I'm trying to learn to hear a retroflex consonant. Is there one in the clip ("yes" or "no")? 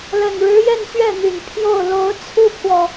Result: yes